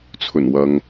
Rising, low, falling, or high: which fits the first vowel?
low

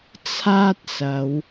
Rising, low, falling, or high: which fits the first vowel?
high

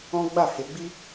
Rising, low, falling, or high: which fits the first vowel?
high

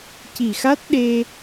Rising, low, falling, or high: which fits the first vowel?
low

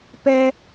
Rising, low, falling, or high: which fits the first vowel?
high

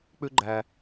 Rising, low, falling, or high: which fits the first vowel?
high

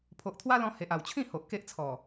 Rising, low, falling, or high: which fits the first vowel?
low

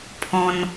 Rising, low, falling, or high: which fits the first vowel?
high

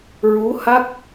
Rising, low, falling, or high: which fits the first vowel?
rising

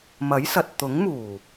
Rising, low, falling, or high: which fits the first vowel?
rising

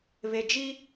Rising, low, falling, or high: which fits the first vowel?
low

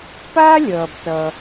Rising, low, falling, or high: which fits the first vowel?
high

